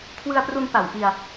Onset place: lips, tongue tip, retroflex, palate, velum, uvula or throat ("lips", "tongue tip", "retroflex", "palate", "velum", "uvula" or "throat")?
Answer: velum